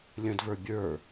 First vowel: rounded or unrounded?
unrounded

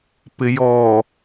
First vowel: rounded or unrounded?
unrounded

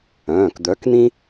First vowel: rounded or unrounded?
rounded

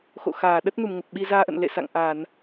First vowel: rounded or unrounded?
rounded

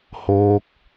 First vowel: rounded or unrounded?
rounded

